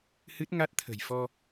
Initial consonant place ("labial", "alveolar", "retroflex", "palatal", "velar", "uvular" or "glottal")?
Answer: glottal